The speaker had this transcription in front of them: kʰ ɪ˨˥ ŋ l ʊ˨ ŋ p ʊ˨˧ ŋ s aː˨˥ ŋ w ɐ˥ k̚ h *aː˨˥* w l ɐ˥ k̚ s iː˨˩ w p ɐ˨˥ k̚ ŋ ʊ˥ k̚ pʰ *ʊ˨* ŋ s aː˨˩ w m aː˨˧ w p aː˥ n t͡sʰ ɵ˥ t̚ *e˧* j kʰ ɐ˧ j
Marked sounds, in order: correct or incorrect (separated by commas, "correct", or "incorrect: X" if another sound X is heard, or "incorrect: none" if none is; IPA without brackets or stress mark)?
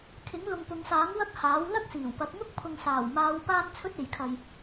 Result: correct, correct, incorrect: e˨